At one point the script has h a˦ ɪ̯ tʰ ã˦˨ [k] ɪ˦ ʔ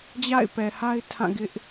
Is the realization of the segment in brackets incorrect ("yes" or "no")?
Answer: yes